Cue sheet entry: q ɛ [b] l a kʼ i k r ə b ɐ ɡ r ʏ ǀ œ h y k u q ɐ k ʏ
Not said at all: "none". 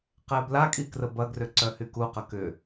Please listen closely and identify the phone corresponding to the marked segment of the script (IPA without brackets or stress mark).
b